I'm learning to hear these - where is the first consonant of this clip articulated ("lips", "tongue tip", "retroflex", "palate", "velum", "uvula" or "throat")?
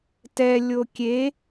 tongue tip